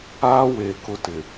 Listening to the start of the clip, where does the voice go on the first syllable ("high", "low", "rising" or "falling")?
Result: high